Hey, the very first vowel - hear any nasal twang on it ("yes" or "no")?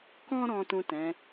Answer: yes